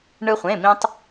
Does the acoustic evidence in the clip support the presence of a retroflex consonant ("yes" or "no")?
yes